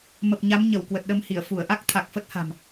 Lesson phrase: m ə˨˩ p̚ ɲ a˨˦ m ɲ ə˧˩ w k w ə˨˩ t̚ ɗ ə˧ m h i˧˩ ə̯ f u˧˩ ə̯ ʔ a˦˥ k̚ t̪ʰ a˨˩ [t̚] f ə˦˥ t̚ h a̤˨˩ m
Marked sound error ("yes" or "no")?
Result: yes